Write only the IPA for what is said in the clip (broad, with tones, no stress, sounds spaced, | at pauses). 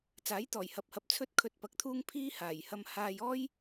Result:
t͡s aː˨˥ j t̪ ɔː˨˩ j h ɐ˨ p̚ h ɐ˨ p̚ t͡sʰ ɵ˥ t̚ kʰ ɵ˧ t̚ p ɐ˨˥ k̚ t̪ʰ uː˥ ŋ pʰ iː˥ h aː˨˩ j h ɐ˧ m h aː˧ j ɔː˥ j